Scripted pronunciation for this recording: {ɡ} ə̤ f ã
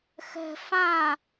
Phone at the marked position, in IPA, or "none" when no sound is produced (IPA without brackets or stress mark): x